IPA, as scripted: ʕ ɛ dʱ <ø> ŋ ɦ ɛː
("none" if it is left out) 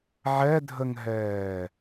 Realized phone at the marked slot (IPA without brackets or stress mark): ə